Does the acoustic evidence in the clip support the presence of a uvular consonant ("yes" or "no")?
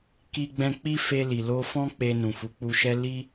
no